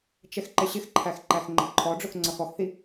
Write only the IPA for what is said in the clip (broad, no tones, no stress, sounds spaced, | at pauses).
t͡ʃ ɛ x ǃ ɪ ɕ ɪ x ǃʰ æ x ǃ æ x ŋ͡ǃ ə ǃʰ ɔ ɖ͡ʐ ʊ x ŋ͡ǀ ʌ x ɔ x θ i